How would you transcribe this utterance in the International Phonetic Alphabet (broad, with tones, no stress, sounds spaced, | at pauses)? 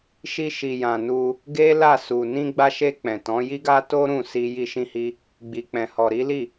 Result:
ʃ i˧ ʃ i˨ j ã˨ n u˧ | ɡ e˦ l a˦˨ s u˨ n ĩ˧ ɡ͡b a˧ ʃ e˧ k͡p ɛ̃˨ t ɔ̃˨˦ j i˦ ɡ a˦ t o˦ ɾ ũ˦˨ s i˧ j i˦ ʃ ĩ˦ h i˦ | ɡ͡b i˨ k͡p ɛ̃˨ h ɔ˨ ɾ i˨˦ l i˦˨